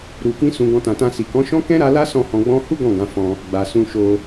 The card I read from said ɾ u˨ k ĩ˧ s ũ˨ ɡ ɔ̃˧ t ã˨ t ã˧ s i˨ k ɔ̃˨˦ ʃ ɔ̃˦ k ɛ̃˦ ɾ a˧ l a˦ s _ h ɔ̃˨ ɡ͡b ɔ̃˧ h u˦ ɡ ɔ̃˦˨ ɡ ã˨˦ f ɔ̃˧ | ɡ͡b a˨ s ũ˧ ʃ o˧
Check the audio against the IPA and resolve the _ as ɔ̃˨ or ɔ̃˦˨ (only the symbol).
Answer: ɔ̃˦˨